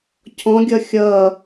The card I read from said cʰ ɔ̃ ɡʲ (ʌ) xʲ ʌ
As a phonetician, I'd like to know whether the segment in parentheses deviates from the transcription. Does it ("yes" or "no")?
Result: no